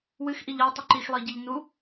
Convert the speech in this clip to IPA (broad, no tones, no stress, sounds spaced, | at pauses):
w ɨ x ʔ i ʎ a tˤ ɨ ǃ i x lˠ i ɟ i ʎ n u